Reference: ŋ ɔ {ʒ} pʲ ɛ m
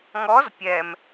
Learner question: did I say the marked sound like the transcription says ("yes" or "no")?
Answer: no